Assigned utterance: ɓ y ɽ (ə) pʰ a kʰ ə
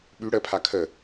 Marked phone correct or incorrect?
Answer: correct